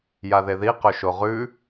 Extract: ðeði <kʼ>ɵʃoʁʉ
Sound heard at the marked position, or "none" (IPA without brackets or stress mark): q